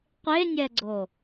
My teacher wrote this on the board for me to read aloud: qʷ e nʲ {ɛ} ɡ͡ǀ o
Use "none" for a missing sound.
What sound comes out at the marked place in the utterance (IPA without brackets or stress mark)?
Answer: ɛ